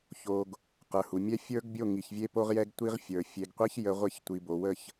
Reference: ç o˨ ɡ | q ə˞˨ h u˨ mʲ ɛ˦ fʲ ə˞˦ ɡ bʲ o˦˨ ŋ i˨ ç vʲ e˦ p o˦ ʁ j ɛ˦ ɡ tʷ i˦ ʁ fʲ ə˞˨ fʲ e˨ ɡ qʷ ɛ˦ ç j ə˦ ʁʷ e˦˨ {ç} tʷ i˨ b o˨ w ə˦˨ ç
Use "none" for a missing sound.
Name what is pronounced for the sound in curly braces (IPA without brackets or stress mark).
ç